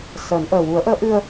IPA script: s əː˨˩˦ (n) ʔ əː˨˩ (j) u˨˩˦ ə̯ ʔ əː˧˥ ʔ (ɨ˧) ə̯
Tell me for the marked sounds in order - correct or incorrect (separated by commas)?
correct, incorrect, correct